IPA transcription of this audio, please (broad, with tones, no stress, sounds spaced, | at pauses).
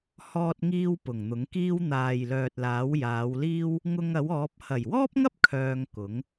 h ɔː˧ t̚ ŋ iː˧ w p ʊ˨˩ ŋ n̪ ʊ˨˥ ŋ k iː˥ w n̪ aː˨ j l œː˨ t̚ l aː˨˥ w j aː˨˧ w l iː˥ w | ŋ ʊ˧ ŋ ɐ˨˥ w ɔː˨˥ p̚ h ɐ˨˩ j w ɔː˥ p̚ ŋ ɐ˥ p̚ kʰ œː˧ ŋ k ʊ˨˥ ŋ